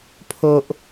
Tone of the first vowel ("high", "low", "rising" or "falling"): low